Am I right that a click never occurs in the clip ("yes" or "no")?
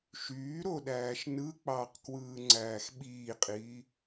no